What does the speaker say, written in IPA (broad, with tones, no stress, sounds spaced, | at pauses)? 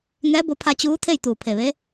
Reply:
ŋ ɛː˧˥ b o˧ pʰ a˧ t͡ɕ uː˧˥ t̪ʰ e˥˨ j t̪ uː˧˩ pʰ e˧˩ ʋ e˧˥